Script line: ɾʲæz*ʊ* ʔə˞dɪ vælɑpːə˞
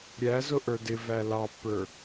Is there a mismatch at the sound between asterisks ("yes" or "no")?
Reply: no